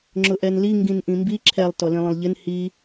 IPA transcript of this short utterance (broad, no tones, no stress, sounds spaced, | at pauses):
ŋ͡ǁ ʊ ʔ ɛ n l i ŋ ɡ ĩ n ʔ ĩ m b i ǁʰ ɛ lˠ t ɔ l ĩ lˠ ə̃ lˠ ʎ ɪ n h i